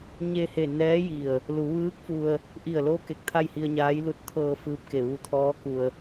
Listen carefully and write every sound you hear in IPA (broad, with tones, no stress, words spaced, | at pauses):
ɲe˧he˧˩nɛː˧˥ji˧˩ə̯ | lu˩˧ʋɯː˧˥k̚fu˧ə̯ | ʔi˧˩ə̯lo˧ ke˧k̚t̪ʰa˥˨jhi˧ə̯ɲaː˧˥j lu˧t̚t̪ʰɤː˧ fɯː˧˥p̚ke˧˩ ʋu˧t̪ʰɔː˧˥ku˧ə̯